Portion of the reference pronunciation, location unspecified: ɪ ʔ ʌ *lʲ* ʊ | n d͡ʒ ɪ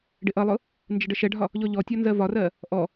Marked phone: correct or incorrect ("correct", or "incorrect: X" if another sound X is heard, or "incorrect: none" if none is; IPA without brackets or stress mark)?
incorrect: lˠ